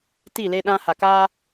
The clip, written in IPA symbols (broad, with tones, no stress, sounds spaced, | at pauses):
t i˦˨ l e˦ ɗ ã˦ h a˨ k aː˦